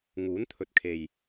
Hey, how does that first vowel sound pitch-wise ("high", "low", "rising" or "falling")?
rising